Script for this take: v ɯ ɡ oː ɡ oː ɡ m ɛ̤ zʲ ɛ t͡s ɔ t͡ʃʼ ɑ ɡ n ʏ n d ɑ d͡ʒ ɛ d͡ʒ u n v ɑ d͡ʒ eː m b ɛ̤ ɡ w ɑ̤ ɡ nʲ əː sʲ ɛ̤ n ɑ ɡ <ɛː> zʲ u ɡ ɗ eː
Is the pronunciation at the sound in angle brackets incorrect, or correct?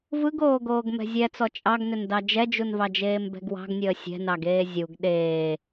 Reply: incorrect: eː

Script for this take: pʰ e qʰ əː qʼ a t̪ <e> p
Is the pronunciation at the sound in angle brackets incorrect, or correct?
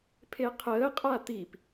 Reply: incorrect: i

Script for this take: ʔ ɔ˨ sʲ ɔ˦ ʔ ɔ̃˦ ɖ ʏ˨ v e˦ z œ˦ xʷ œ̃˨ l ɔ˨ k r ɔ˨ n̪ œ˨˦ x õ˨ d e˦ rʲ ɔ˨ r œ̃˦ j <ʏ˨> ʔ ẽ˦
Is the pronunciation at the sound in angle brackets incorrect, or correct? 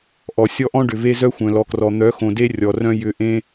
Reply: correct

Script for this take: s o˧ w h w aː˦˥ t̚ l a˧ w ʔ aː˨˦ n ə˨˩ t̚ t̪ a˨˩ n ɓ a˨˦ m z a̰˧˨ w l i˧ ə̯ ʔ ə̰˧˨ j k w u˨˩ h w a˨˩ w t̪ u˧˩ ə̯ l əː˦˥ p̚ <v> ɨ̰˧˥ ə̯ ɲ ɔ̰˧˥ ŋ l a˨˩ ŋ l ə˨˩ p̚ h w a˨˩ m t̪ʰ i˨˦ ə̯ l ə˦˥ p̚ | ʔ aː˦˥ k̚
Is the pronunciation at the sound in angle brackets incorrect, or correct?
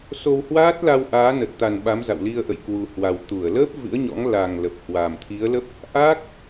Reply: correct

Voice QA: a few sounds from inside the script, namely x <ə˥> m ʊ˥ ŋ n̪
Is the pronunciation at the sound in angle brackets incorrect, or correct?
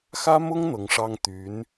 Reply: incorrect: ä˥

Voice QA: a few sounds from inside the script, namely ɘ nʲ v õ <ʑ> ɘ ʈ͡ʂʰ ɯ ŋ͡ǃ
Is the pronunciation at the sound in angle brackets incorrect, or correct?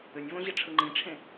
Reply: correct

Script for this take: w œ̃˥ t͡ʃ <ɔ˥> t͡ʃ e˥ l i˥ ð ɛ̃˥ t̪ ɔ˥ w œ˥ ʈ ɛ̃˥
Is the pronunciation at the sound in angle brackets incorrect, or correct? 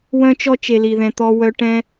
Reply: correct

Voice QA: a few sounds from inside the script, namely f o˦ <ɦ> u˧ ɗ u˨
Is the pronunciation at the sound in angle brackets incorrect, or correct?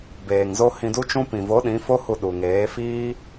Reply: incorrect: h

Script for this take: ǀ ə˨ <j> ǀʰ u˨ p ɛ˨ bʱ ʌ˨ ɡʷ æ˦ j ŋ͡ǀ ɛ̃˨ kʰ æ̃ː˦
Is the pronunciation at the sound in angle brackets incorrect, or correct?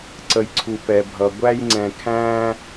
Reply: correct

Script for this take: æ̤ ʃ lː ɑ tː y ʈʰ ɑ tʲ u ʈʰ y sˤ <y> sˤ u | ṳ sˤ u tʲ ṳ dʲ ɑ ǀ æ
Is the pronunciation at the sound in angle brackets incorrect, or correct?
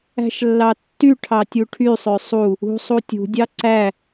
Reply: incorrect: ø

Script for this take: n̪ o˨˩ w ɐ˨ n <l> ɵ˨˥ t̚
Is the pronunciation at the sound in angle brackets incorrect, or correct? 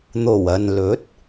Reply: correct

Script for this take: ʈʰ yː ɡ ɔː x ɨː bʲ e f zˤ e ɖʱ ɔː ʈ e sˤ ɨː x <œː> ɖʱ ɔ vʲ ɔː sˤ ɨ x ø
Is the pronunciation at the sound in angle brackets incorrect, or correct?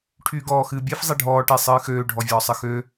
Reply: incorrect: øː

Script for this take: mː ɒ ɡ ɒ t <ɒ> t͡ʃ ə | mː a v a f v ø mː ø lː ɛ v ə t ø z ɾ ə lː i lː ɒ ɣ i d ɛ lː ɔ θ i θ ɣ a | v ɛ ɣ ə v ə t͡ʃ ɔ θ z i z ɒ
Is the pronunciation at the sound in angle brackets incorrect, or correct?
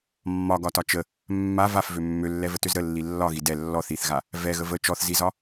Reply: correct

